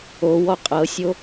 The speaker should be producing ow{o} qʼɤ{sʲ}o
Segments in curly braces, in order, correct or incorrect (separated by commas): incorrect, correct